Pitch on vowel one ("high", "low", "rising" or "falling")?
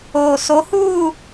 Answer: low